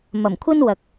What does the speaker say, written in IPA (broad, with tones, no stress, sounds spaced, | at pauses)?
m ɐ˨˩ m kʷʰ ɐ˥ n w ɐ˨ k̚